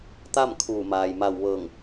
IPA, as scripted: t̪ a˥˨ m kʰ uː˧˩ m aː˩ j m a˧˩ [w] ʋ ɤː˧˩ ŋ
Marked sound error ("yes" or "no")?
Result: no